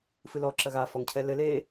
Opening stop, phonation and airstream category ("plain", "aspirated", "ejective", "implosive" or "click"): click